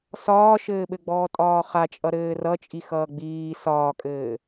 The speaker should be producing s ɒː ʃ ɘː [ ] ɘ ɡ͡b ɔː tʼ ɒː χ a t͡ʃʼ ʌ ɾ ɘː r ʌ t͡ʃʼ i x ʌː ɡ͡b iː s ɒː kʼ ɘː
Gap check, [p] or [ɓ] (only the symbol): ɓ